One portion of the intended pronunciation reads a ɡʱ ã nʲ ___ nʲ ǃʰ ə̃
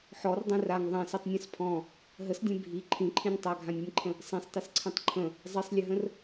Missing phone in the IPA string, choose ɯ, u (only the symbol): ɯ